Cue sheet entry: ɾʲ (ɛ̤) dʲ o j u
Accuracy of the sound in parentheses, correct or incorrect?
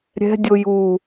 correct